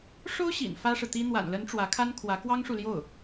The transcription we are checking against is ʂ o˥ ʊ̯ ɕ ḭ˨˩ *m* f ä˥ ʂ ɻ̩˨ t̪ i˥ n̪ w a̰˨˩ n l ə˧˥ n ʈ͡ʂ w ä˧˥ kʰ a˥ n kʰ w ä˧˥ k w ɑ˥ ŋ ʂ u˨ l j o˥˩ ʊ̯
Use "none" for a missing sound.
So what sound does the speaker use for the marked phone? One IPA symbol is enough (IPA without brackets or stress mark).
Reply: n